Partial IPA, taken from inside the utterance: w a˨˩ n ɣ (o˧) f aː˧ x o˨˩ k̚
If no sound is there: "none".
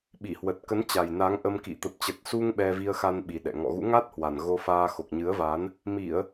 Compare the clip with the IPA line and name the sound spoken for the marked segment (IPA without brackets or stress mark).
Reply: o˧